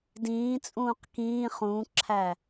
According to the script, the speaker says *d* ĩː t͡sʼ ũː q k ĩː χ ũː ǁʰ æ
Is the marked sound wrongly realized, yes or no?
no